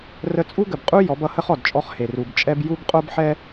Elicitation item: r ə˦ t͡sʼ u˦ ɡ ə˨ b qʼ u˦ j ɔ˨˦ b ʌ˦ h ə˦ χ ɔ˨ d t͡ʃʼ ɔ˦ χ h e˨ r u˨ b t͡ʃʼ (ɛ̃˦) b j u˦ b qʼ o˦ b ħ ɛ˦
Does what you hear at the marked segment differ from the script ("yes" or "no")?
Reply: yes